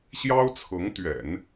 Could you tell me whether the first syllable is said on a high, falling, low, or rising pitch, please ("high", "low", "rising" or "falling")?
high